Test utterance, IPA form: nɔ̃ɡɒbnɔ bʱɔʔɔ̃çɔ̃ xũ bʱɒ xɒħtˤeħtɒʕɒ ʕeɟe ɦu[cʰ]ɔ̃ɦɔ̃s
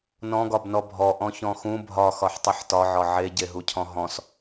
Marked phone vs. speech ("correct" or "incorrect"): correct